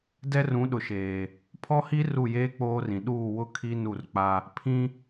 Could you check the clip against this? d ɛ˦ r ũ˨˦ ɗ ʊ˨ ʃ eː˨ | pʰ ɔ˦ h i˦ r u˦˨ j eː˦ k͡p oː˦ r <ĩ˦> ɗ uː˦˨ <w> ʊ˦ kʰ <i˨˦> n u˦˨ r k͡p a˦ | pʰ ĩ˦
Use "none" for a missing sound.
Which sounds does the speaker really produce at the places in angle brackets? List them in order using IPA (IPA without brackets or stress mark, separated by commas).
ĩ˨, w, i˦